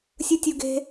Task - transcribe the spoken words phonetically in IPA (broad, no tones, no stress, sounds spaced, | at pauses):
sʲ ɯ tʲ u ɡ e̤